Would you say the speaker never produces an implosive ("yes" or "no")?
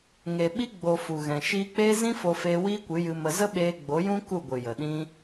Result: no